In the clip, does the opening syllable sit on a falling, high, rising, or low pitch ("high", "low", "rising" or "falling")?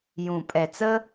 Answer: low